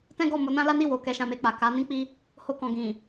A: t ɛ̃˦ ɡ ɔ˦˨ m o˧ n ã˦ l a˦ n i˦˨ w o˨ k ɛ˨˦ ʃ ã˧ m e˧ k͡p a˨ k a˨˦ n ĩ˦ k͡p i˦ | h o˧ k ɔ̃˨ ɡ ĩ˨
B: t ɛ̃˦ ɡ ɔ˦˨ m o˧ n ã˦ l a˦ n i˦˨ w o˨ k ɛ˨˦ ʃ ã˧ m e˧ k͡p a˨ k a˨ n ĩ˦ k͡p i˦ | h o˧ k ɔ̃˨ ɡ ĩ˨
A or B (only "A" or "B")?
A